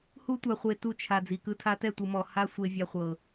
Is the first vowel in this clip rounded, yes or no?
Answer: yes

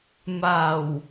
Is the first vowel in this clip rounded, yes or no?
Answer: no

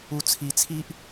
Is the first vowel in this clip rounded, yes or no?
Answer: yes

